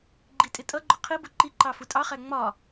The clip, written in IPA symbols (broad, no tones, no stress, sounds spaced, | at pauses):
ɡ͡ǃ i tʼ ɪ tʼ ʌ ɡ͡ǃ ʊ qʰ i b ʊ ǃ i ǃ ɑ f u tʼ ɑ χ æ ŋ͡m ɒ